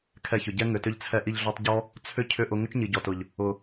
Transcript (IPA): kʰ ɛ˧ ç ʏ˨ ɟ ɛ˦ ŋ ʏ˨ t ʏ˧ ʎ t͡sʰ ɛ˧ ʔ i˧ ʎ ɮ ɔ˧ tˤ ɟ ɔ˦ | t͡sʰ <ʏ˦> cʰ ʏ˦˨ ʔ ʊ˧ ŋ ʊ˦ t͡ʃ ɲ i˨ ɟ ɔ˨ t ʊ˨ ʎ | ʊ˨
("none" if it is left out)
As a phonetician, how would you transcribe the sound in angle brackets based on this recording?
ʏ˦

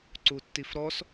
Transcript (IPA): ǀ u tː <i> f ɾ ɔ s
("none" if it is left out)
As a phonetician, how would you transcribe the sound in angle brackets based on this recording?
i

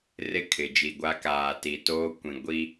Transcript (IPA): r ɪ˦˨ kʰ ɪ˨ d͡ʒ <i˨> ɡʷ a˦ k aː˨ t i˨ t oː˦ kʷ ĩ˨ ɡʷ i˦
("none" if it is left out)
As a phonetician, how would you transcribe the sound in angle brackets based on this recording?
i˨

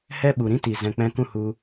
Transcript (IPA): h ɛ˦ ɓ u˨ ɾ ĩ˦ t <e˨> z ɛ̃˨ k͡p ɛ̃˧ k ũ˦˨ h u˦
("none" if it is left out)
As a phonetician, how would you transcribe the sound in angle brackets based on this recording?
i˨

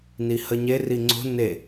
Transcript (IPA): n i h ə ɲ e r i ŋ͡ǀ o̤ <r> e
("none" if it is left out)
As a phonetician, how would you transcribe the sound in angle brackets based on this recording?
n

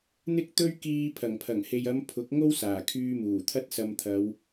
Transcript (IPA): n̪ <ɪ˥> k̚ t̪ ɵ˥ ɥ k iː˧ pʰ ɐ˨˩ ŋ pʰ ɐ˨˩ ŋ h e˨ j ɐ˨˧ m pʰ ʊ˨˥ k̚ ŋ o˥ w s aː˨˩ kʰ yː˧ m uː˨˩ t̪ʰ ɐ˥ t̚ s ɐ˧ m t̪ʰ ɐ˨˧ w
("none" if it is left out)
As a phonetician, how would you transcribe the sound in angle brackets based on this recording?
ɪ˥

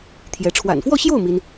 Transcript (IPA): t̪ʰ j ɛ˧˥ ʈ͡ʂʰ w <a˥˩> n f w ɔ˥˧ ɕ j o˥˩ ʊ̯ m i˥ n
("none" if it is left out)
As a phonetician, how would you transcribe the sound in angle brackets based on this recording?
a̰˨˩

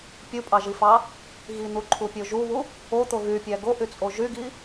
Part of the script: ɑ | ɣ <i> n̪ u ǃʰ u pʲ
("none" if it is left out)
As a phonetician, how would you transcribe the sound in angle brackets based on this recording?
i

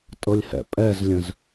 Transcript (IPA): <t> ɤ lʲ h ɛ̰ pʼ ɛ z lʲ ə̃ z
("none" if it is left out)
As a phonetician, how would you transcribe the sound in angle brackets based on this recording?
tʼ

